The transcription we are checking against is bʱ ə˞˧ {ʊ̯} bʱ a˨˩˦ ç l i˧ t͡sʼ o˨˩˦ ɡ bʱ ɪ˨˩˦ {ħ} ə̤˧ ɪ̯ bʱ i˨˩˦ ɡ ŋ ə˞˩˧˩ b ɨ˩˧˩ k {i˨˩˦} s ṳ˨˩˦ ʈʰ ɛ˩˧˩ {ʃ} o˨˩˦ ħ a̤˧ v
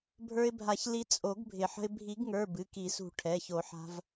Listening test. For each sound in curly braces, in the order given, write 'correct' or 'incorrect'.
incorrect, correct, correct, incorrect

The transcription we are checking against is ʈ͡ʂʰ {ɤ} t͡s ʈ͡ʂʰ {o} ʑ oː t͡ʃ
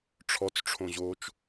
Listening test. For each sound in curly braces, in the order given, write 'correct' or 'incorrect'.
incorrect, incorrect

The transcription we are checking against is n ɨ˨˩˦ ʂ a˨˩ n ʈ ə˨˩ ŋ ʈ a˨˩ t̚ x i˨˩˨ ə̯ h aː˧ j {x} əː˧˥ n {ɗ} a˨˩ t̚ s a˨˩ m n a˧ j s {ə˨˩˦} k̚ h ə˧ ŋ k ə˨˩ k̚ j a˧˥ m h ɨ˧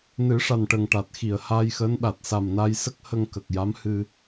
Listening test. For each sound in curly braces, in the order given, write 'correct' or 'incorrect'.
correct, correct, incorrect

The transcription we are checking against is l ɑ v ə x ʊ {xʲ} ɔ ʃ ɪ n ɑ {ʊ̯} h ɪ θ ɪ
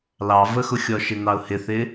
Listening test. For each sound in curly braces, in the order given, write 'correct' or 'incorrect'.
correct, correct

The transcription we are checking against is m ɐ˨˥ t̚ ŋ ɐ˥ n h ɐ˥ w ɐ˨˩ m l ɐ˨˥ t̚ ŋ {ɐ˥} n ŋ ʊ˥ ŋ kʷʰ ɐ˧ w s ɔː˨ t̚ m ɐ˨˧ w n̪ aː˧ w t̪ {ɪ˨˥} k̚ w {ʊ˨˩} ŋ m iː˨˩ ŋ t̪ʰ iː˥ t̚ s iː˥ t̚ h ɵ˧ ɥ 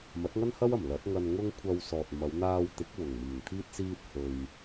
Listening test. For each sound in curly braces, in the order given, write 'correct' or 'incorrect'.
incorrect, correct, correct

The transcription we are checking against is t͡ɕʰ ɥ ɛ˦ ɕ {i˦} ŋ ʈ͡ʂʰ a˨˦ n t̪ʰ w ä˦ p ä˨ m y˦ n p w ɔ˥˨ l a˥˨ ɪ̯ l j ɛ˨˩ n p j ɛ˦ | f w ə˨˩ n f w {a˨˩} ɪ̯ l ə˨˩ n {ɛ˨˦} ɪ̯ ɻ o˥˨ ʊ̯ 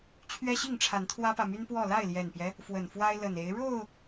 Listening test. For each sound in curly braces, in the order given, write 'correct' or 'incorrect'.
incorrect, incorrect, incorrect

